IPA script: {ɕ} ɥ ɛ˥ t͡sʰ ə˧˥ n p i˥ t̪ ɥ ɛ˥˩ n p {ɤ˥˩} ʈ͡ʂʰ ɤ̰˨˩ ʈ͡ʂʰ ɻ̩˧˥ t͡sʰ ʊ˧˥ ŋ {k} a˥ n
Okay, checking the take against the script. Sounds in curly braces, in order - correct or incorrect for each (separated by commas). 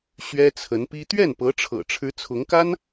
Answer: correct, incorrect, correct